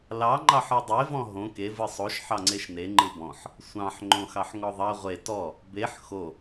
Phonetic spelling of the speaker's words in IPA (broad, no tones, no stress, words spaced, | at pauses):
lɑ ŋ͡ǃɑħɯdˤe vɔ̃ɦõ ke vɯsˤoʃ ħɑŋ͡ǀeʃne ŋ͡ǃɯbɔ̃ħ | sʷɑ̃ħ ŋ͡ǃõxɑħŋɔðˤɑ ʁʷe tɔ | beħ xo